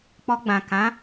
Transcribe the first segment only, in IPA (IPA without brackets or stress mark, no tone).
k͡p